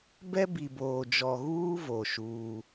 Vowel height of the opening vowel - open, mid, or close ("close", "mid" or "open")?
mid